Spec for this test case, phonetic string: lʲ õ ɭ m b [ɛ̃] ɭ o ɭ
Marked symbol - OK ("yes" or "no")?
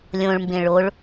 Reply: no